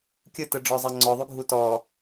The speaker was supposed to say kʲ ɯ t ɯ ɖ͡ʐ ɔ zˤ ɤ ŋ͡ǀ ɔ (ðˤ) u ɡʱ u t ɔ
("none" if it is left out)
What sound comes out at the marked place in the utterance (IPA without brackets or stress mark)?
ðˤ